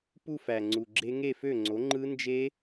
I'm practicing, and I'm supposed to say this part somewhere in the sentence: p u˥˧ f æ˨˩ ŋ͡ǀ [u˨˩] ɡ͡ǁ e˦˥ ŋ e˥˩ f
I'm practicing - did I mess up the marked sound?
no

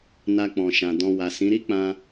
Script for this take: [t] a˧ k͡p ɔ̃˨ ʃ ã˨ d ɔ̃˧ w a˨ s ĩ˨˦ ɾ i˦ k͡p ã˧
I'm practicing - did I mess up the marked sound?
yes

